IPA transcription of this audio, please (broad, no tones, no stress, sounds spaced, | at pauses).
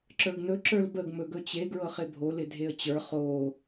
ǁ ə˞ ɡ n ɵ ǁ ə˞ l b ə ɡ m ɵ ɡ ɵ t͡ɕ e ɡ ɹ ɤ χ ɪ bʱ o l ɪ dʱ e ə̯ t͡ɕ ə˞ χ o